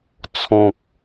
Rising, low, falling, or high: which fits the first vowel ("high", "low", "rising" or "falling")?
low